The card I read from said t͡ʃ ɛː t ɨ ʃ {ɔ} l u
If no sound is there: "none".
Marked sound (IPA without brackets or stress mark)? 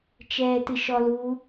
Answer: ɔ